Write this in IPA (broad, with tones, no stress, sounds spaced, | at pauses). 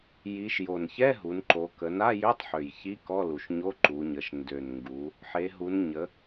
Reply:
j i˩˧ ʃ j o˨˩ n ç ɛ˧˥˧ ɦ u˩˧ n ǃ o˩˧ k ə˩˧ n a˧˥˧ j ø˧˥˧ tˤ ħ ø˨˩ j ç i˧˥˧ k ɔ˧˥˧ l u˨˩ ʃ ɲ o˧˥˧ ǃ u˩˧ ɲ ə˩˧ ʃ n d ø˨˩ n ŋ ɡ u˩˧ | ħ e˩˧ ɦ u˩˧ n ɲ ə˩˧